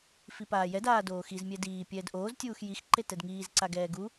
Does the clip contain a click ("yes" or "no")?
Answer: yes